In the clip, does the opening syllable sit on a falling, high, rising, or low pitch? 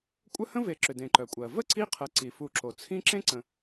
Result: high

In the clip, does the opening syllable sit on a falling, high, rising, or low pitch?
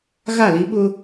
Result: falling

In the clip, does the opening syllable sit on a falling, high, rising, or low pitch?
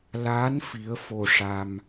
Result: rising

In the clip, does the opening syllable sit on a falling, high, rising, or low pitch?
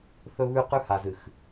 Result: high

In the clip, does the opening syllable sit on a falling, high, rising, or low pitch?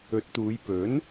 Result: rising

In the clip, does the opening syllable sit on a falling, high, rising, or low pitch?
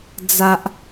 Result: high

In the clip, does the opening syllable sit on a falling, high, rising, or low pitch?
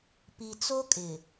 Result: low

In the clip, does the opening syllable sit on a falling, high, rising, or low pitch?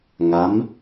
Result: rising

